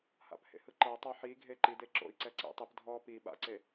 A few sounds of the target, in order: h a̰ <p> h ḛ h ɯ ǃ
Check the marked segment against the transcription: correct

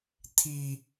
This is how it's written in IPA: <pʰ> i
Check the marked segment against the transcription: incorrect: t̪ʰ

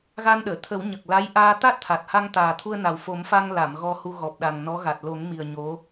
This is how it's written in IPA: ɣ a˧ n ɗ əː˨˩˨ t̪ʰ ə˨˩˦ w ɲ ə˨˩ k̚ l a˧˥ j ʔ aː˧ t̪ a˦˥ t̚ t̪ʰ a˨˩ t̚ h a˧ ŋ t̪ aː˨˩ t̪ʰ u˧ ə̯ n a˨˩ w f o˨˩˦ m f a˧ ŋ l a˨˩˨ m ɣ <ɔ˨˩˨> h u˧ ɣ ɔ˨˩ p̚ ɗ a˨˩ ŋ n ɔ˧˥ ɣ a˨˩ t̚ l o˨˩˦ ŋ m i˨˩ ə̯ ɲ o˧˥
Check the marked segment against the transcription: incorrect: ɔ˧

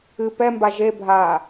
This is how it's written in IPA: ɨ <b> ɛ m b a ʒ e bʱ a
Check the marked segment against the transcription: incorrect: p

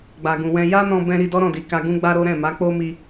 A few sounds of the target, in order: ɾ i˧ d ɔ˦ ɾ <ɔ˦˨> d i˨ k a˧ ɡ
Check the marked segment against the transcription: incorrect: ɔ̃˦˨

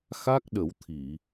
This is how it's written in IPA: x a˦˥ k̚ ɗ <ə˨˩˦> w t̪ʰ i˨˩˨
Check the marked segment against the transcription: correct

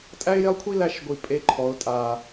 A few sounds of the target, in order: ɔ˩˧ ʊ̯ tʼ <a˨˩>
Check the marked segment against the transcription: correct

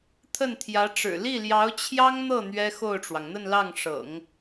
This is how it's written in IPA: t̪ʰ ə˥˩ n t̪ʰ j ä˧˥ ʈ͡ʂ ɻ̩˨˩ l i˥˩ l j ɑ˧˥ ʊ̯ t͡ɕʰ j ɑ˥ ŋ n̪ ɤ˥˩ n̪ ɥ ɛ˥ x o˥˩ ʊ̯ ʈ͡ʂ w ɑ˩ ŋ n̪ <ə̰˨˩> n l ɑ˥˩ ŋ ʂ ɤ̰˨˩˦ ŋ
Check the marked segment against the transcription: incorrect: ə˥˧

